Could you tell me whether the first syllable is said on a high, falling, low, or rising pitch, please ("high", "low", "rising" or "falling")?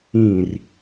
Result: low